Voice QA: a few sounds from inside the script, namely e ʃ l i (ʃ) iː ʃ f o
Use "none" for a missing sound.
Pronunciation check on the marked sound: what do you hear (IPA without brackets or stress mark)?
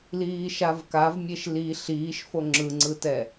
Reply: ɬ